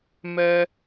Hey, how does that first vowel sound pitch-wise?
high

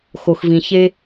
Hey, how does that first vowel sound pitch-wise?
low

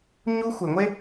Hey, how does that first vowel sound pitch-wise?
high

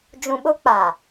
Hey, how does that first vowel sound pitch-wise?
low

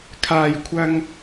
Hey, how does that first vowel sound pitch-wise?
low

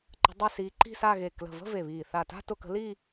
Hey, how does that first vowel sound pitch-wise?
rising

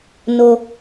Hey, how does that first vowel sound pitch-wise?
low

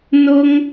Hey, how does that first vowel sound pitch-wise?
high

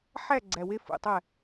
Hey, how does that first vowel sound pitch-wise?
falling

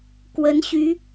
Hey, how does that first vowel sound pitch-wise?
rising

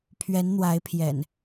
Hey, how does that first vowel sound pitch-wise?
rising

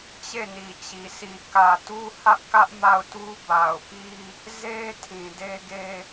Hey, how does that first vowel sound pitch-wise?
falling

